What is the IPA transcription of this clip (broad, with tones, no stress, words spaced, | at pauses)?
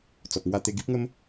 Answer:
t͡sɔ˨p̚ŋwa˥˧t̪e˥˧ ɡi˦p̚ŋə˦m